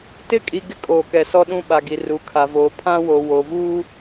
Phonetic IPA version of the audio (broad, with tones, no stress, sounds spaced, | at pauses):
t ɪ˦˨ kʼ i˨ ɡ ɪ˦ kʼ oː˨ k ɛ˨ s ɔ˦ ɗ ũ˦ ɓ a˨ ɡ i˨ r u˨ kʰ a˨ v oː˨ pʰ ã˦ w o˨ w o˨ v uː˦